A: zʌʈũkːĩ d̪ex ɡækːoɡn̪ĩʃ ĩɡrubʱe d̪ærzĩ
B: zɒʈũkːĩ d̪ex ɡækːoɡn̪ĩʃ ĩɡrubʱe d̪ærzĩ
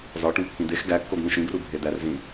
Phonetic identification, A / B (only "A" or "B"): B